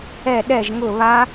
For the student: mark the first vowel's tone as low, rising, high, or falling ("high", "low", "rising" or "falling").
falling